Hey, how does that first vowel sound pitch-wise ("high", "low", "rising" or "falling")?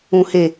low